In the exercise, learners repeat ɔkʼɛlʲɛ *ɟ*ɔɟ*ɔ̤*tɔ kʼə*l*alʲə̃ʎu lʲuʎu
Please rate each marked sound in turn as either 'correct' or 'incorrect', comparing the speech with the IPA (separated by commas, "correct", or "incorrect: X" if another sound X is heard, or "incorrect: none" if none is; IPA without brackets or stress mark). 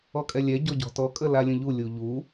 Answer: correct, correct, correct